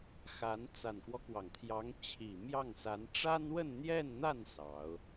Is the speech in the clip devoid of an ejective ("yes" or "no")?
yes